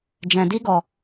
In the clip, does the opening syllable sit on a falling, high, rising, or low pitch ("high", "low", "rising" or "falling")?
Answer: low